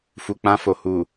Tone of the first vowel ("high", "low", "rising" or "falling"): low